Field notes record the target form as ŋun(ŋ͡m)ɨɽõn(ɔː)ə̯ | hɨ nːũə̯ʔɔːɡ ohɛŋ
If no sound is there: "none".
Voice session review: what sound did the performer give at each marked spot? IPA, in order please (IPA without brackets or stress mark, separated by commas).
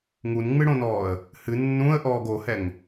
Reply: ŋ͡m, ɔː